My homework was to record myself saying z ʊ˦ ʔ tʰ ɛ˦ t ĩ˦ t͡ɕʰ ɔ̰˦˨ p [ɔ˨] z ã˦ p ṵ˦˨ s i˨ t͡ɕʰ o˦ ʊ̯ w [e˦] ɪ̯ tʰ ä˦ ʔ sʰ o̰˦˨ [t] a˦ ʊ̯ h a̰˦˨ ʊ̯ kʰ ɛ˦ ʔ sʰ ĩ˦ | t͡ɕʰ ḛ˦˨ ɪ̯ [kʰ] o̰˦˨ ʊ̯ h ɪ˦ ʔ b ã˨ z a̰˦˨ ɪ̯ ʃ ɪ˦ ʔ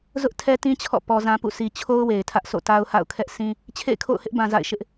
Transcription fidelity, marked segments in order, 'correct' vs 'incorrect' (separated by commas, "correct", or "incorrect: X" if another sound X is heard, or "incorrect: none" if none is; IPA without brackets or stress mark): correct, incorrect: e˨, correct, correct